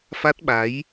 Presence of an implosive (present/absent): present